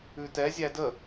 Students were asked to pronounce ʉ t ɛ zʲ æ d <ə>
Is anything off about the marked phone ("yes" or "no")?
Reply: no